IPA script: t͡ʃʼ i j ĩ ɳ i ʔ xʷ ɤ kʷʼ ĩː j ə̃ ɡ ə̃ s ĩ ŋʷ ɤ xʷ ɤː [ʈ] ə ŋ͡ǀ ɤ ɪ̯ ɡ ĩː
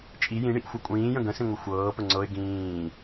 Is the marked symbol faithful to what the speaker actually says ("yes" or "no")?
no